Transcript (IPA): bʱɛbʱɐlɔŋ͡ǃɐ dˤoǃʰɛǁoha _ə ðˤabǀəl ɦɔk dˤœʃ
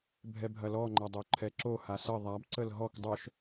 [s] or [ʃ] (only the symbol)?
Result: s